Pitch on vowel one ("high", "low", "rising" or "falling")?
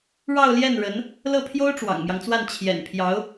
falling